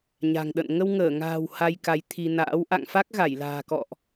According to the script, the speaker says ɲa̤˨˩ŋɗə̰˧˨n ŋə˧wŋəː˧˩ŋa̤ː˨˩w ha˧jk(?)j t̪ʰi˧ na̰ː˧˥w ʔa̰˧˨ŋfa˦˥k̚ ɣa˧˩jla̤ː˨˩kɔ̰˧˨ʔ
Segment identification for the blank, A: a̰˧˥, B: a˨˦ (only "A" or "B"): B